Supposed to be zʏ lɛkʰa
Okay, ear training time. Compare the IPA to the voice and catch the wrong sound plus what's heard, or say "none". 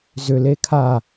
ɛ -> e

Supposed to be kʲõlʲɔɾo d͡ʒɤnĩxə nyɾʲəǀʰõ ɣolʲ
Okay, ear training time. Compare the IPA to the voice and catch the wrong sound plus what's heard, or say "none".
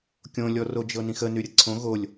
ɾ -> r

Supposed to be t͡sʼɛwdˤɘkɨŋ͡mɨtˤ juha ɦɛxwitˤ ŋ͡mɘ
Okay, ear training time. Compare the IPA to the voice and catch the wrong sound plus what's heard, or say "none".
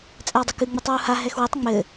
j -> w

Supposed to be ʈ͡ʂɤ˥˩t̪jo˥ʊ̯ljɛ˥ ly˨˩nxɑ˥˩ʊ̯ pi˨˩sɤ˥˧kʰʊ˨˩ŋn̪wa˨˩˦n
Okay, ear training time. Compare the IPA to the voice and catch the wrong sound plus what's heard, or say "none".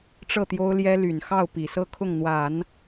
ʊ˨˩ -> ʊ˥˩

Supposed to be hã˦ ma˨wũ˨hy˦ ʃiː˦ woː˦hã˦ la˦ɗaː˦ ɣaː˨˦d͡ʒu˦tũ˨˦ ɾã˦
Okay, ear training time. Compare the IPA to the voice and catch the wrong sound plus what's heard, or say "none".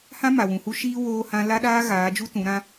y˦ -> u˦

